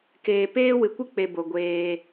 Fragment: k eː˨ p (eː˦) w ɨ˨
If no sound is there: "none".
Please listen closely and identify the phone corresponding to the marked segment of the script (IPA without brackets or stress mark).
eː˦